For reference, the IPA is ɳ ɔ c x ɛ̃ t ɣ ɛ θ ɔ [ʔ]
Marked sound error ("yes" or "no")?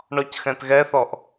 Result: no